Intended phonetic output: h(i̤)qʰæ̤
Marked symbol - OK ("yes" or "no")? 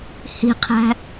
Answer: yes